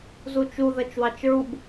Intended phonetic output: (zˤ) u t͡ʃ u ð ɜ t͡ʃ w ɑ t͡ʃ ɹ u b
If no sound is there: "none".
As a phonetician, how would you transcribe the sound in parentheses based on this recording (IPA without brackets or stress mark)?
z